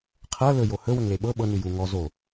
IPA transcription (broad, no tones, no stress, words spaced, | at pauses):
qʰɤ lɵ johɵ wəŋleɓɤ ɓɤ nʉju ŋɔ zo